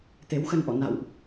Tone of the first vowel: rising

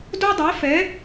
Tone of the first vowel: high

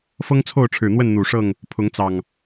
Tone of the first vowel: high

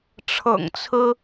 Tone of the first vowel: low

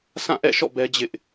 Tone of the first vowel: falling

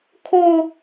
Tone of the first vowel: high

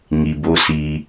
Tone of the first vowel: low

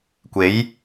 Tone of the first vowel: rising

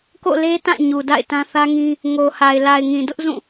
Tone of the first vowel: falling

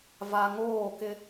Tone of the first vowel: low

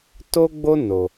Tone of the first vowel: high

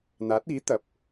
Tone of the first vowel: rising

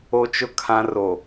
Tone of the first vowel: high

